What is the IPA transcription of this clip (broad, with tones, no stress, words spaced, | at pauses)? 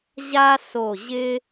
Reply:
ʑa˥ so˧˩ʑɪ˥